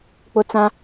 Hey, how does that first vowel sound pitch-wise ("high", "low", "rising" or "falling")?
high